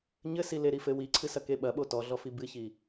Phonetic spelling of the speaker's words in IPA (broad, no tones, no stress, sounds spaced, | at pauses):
ɲ ɘ s i l e ɾ i f ɘ w i ǀʰ ɨ s ɐ k e ɓ ɐ ɓ o t ɔ ɮ ɔ f i b ɨ ç i